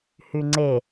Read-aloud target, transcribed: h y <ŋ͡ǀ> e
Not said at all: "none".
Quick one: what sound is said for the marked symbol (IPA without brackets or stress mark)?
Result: ŋ͡ǀ